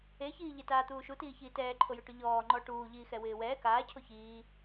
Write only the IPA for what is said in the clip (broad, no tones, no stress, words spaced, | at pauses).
eçiː ʎɪtaːt̪uː ʃutiːçiː tɛːǃʰojʊʈʊ ʎɔːŋ͡ǃɔː ʈuːʎiːxɛwɪː wɛː kaːcʰo çiː